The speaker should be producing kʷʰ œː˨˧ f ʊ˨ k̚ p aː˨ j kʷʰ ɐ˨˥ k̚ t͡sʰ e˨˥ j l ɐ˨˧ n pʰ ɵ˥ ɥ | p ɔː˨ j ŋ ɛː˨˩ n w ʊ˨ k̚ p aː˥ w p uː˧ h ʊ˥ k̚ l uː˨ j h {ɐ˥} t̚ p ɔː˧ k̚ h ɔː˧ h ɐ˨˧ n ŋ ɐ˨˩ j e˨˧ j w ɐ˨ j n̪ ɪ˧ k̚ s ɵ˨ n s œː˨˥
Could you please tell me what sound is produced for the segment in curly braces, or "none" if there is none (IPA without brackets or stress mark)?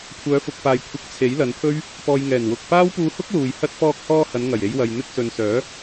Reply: ɐ˥